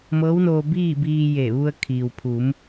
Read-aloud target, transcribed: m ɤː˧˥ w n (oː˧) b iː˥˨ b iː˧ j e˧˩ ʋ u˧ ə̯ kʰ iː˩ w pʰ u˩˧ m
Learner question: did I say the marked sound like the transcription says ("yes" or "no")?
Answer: yes